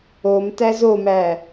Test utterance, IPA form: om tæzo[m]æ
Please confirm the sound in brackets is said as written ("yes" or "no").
yes